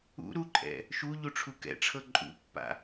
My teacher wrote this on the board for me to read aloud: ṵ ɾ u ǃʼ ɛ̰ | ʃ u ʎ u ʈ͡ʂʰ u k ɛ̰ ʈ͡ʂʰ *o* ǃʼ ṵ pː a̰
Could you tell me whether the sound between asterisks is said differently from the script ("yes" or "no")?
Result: yes